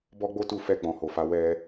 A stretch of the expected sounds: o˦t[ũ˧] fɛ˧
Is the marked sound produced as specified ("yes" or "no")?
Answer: no